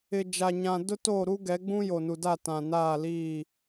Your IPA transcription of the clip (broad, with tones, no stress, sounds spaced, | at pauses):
ɪ˨ d͡ʒ a˨ ɲ ã˨ d ʊ˦ t oː˦˨ ɾ u˦ ɡ ɛ˨˦ ɡ͡b ũ˦ j o˨ n u˨ d a˦˨ t ã˨ n aː˦˨ l iː˦˨